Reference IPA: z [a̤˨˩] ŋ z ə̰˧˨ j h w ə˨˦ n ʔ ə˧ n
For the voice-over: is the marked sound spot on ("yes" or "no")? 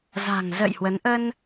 yes